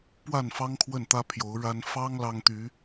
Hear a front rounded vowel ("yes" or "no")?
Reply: yes